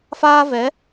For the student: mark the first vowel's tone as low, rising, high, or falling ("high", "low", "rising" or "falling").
high